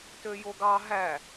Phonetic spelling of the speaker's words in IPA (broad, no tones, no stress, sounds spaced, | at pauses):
t ø j o ɡ ɑ ɦ æ